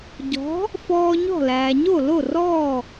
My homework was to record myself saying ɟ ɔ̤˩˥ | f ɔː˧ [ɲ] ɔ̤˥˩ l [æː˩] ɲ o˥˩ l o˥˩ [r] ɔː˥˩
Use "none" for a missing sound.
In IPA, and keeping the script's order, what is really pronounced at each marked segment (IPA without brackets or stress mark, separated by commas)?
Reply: ɲ, æː˩, r